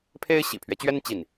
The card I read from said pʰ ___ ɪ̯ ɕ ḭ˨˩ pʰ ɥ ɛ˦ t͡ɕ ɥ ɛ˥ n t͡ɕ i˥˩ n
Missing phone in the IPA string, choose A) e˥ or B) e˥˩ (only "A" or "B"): A